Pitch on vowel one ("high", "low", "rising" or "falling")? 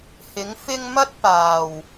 rising